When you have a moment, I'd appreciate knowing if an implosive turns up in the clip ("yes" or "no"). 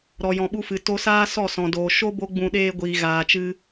yes